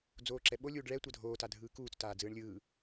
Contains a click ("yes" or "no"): yes